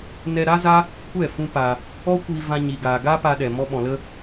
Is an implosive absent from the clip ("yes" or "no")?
no